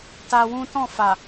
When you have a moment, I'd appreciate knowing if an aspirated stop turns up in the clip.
no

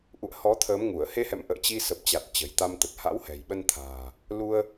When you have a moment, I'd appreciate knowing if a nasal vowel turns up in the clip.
no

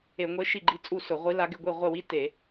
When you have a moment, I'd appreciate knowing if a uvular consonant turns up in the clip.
yes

